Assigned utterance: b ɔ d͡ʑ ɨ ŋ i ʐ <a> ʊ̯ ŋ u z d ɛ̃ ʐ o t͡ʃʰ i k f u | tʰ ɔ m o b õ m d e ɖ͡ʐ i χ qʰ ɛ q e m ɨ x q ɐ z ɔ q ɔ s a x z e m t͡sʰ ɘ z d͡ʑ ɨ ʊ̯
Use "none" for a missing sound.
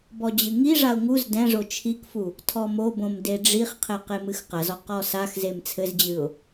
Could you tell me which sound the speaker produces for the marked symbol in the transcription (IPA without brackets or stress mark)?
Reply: a